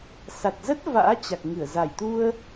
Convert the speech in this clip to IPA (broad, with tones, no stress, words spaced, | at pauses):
sa˨˩t̚zə˦˥t̚ va̰ː˧˥t͡ɕa˨˩k̚ŋɨ˧˩ə̯ za˧˩jt̪u˧ə̯